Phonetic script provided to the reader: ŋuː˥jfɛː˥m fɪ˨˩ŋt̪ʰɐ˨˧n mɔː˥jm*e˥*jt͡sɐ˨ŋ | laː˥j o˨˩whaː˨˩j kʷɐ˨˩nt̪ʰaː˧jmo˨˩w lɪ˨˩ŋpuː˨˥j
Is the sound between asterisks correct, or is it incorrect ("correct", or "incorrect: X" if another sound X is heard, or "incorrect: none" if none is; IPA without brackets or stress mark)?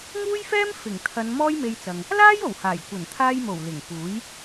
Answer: incorrect: e˧